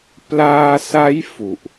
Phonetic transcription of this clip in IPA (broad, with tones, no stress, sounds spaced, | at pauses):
p l aː˧ s a˦˥ j f u˨˩ ʔ